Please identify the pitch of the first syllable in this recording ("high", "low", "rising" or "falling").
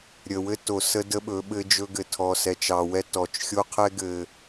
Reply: low